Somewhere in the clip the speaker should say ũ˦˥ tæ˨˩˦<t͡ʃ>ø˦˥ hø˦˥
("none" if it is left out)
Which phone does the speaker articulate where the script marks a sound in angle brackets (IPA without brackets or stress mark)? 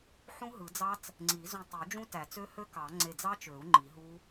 t͡s